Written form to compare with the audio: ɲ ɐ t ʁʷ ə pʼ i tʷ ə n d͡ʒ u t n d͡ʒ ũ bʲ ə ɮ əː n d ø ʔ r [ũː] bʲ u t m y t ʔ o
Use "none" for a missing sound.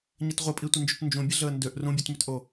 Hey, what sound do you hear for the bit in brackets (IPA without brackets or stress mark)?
ũ